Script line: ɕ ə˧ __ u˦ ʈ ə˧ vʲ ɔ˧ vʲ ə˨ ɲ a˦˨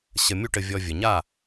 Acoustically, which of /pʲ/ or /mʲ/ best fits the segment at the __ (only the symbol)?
mʲ